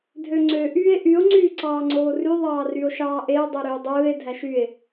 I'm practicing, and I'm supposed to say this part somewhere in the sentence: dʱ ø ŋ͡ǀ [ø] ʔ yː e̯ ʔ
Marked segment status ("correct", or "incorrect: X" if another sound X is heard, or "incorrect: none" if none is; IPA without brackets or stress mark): correct